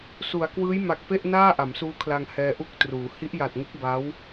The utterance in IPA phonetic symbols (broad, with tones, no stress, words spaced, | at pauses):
su˩˦a̯kwɯː˦˥j ma˨˩k̚pe˥˩ʔ naː˥˩ ʔa˩˦msuː˦˥kʰla˧ŋ hɛː˧ʔu˥˩k̚truː˩˦ hi˦˥ʔja˨˩t̚ ŋɯ˦˥k̚ba˦˥w